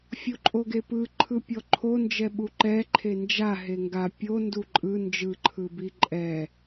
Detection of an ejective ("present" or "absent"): present